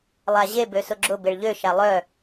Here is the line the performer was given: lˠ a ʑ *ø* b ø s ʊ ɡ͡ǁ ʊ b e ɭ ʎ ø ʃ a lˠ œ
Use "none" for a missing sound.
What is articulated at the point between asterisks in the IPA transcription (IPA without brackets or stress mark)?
e